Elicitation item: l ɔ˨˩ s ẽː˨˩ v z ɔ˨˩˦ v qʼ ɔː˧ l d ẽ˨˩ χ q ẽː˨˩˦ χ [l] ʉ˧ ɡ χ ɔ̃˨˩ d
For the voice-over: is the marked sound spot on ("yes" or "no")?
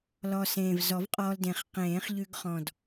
no